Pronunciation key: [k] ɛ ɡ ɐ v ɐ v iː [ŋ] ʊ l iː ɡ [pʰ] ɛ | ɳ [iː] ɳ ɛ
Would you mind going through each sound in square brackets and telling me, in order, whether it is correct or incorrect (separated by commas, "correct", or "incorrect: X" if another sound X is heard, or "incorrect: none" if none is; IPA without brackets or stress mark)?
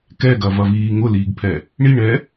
correct, correct, correct, incorrect: i